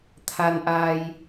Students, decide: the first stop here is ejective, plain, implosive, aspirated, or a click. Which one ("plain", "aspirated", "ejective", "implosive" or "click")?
aspirated